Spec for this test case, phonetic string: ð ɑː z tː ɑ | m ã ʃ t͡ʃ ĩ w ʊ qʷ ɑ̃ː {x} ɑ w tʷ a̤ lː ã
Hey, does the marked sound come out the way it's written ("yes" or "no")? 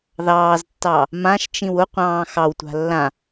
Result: yes